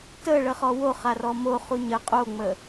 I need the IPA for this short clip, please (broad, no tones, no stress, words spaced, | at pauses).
tə ɭəχɔwo χarɔmo χuɲə qʼoŋ͡mə